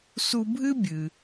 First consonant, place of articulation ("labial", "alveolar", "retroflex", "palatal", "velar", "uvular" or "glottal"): alveolar